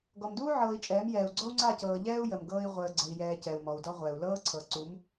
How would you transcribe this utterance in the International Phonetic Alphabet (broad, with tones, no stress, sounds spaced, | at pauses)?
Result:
ɡ ɔ˨ m d uː˦ ʕ ɤː˨ i̯ t͡ʃʼ ɛː˨˦ m j ɛː˨ u̯ ɡ͡ǀ ɔ˦ u̯ ŋ͡ǀ a˦˨ c ɤː˨ ʎ ɛː˦ u̯ j ə˨ m ɡ ɤː˦ i̯ ʁʷ əː˨ ɡ͡ǀ ə˨ i̯ j ɛː˨ c ɛ˨ u̯ m ɔ˨ u̯ d ɔ˦ ʁʷ ɛ˨ u̯ l ɤː˦ ǀʰ ɤ˨ ǀ u˨˦ m